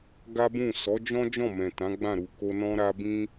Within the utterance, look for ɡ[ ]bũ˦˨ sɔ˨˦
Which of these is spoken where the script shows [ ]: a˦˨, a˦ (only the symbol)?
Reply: a˦